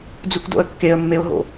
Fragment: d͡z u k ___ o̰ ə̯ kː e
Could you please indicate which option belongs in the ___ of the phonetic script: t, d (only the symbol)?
d